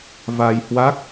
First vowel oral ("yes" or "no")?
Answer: yes